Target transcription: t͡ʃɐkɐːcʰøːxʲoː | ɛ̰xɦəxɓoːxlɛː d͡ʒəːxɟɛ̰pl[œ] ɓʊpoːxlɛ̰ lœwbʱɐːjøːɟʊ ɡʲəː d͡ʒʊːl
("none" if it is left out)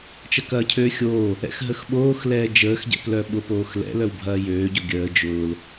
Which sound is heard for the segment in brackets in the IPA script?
œ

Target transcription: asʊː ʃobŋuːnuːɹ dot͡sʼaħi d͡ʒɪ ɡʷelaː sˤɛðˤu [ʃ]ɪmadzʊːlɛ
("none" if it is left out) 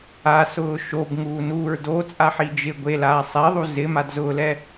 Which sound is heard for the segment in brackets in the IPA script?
z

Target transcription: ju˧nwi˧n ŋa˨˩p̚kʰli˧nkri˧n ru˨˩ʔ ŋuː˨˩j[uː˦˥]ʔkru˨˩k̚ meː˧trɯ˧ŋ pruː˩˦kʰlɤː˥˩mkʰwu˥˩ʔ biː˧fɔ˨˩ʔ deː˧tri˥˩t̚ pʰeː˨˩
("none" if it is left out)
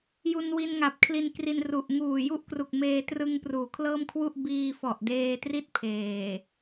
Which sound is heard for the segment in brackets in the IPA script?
u˦˥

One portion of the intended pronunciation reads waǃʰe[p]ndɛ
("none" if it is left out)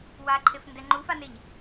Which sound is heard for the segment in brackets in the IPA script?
f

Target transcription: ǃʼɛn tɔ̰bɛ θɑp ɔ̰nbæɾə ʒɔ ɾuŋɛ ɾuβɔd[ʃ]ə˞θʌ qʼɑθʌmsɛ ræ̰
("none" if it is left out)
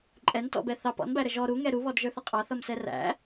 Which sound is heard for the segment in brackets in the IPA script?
ʒ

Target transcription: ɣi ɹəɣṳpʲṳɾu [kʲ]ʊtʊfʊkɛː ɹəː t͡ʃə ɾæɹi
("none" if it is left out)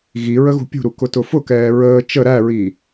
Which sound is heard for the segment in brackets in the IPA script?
k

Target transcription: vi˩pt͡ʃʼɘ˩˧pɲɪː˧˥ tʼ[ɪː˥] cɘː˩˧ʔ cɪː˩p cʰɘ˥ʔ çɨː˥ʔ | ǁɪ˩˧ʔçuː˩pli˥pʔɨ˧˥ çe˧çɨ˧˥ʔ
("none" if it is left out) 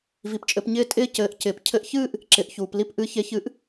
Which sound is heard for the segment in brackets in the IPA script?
ɪː˥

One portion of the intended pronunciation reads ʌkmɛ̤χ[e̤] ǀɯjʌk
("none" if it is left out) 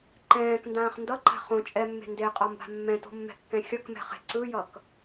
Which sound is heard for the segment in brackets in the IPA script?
e̤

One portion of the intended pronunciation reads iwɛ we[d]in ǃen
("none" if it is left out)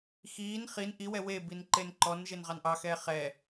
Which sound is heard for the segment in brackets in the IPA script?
b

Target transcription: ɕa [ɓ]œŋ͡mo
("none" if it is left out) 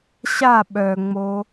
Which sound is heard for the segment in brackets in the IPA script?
ɓ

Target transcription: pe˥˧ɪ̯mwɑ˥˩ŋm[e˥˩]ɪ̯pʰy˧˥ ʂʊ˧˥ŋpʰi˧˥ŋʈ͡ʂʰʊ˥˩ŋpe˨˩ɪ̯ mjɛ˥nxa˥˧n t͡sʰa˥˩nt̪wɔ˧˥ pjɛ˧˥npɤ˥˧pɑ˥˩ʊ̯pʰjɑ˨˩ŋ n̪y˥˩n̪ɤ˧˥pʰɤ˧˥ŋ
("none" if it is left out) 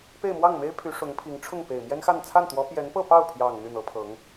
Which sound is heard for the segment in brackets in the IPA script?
e˥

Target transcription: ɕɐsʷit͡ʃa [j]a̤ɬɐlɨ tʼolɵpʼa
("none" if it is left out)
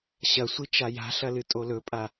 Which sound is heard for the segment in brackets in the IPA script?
j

